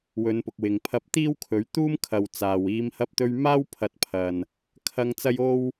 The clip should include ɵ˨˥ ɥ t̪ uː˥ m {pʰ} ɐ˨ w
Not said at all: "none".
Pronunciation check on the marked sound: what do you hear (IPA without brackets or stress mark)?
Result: kʰ